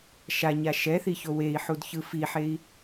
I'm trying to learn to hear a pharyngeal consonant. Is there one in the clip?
yes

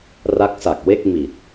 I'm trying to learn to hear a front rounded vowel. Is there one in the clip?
no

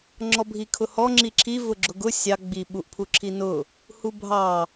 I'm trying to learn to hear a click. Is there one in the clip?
yes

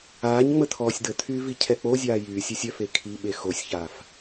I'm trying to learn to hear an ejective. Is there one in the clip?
no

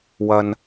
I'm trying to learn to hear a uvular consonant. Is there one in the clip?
no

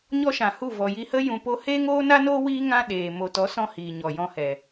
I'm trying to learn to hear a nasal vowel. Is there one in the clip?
yes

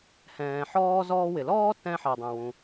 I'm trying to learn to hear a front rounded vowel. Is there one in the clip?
no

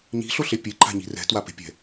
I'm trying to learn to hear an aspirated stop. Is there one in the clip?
no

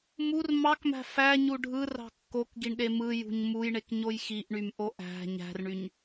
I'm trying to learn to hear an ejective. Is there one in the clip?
no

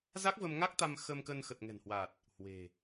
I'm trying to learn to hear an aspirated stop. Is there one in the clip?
no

